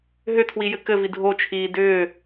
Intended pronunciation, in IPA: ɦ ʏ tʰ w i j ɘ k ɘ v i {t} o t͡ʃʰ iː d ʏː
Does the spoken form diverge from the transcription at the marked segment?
yes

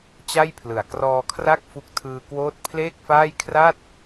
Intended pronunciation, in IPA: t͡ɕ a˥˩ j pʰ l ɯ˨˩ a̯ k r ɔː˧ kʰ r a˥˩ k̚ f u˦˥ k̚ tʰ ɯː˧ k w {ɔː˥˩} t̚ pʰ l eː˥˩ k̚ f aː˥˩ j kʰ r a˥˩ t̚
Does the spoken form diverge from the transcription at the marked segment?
yes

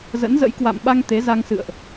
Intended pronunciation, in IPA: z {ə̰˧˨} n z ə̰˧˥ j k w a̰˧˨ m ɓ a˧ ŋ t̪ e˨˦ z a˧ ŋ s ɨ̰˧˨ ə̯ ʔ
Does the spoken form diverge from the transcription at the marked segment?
yes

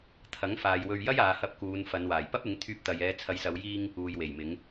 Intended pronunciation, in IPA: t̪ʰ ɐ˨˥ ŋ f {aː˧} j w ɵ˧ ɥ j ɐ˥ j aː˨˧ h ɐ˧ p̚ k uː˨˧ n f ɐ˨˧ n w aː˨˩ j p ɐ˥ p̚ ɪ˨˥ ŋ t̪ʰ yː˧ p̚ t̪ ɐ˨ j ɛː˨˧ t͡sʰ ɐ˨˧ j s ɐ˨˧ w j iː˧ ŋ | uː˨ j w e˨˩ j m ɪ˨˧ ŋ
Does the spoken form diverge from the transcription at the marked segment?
yes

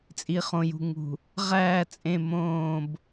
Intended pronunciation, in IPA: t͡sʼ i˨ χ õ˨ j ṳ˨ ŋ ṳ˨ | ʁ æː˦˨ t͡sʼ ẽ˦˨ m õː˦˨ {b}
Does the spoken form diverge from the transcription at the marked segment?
no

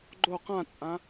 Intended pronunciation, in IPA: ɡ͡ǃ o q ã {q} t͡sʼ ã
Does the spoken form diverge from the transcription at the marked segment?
yes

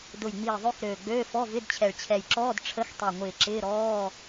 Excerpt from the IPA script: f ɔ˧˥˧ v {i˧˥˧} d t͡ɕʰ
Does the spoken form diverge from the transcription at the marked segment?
yes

